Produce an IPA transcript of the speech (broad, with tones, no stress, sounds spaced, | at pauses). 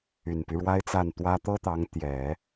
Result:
y˨˩ n p y˦ ɻ w a˥ ɪ̯ t͡s a˥˩ n t̪ w ä˥ t̪ ɤ˥ t̪ ɑ˧˥ ŋ t̪ j ɛ˨˩˦